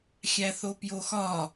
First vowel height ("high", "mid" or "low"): low